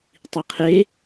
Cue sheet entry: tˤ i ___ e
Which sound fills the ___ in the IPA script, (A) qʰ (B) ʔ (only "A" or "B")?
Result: A